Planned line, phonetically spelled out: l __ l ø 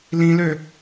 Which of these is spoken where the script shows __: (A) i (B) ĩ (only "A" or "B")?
B